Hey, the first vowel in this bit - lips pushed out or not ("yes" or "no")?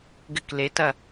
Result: no